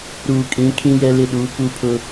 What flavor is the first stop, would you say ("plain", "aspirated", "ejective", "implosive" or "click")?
ejective